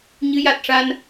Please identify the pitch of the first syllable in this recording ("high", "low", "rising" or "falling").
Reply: rising